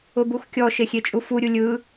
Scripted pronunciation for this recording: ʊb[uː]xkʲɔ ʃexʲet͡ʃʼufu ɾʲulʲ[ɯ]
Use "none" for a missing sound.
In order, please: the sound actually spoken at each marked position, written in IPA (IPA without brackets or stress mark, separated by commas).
u, ɯ